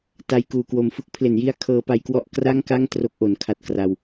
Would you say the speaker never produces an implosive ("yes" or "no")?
yes